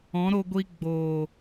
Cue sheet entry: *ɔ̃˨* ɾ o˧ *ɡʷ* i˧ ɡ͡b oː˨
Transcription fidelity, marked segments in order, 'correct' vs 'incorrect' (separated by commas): incorrect, correct